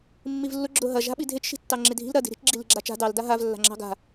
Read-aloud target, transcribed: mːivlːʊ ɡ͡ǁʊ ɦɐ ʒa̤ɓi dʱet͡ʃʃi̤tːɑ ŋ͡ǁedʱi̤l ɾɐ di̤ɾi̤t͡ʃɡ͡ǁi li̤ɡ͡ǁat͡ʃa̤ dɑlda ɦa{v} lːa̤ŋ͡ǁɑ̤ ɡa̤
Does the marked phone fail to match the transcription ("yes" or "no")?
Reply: no